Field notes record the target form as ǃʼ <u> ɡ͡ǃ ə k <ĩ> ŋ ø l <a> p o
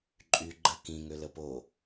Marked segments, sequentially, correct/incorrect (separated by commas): incorrect, correct, incorrect